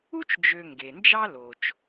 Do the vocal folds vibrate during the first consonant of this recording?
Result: no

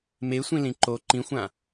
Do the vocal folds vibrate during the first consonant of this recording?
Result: yes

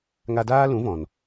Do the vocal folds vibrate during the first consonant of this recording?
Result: yes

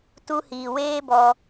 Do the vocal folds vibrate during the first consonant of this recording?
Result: no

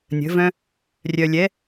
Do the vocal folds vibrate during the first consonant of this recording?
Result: yes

